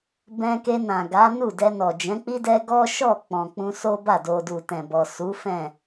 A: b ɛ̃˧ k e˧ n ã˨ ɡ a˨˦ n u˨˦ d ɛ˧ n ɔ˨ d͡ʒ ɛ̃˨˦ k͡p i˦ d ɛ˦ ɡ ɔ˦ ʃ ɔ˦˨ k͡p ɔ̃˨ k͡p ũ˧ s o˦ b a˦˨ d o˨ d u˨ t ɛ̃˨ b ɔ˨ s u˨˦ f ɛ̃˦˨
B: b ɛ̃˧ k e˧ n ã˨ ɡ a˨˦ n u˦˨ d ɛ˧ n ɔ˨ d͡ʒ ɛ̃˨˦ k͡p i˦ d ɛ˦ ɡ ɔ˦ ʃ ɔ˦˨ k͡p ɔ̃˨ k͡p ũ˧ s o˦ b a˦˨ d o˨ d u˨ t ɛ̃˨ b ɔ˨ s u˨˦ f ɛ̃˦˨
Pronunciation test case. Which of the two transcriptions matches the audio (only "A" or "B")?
B